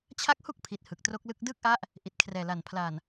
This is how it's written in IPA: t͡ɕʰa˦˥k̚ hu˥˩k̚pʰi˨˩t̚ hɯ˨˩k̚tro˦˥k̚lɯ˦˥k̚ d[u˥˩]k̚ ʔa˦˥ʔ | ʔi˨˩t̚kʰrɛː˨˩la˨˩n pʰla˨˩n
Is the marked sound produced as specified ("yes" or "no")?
no